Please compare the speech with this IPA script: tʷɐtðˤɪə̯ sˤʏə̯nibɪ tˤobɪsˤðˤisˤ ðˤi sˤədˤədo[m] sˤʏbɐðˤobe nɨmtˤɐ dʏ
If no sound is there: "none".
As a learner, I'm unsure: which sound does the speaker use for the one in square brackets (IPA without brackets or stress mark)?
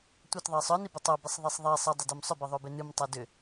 m